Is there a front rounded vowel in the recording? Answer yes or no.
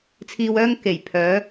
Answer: yes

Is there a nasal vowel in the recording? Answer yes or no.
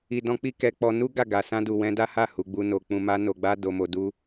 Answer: yes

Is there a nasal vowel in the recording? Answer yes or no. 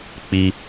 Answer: no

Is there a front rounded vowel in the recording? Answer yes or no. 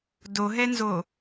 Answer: no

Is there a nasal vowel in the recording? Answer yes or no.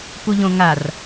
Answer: yes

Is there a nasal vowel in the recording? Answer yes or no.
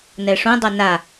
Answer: yes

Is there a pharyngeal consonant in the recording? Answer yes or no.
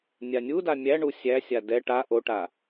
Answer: no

